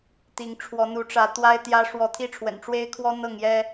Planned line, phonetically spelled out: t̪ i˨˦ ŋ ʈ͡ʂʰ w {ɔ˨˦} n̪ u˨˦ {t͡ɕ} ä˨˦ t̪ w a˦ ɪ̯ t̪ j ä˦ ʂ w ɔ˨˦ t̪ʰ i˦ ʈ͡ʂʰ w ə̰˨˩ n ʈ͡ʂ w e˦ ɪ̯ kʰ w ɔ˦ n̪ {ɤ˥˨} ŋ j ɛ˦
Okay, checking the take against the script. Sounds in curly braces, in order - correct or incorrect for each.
correct, incorrect: ʈ͡ʂ, correct

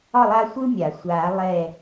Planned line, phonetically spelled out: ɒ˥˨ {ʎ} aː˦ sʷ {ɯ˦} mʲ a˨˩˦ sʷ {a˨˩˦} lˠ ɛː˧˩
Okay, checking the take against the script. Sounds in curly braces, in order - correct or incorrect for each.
incorrect: lˠ, correct, incorrect: aː˨˩˦

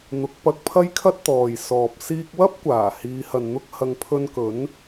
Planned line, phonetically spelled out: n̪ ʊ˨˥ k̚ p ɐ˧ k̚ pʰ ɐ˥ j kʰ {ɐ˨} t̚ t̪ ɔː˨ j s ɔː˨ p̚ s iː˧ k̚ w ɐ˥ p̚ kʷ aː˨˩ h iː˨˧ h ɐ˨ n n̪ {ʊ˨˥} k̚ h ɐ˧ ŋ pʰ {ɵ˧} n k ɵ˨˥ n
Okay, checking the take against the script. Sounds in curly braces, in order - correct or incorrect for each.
incorrect: ɐ˥, incorrect: ʊ˥, correct

